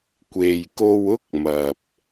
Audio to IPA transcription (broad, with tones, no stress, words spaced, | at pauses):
kʷe˨jko˧wʊ˥k̚mɐ˨p̚